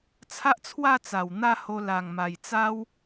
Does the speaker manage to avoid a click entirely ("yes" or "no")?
yes